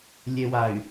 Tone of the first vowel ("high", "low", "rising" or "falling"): low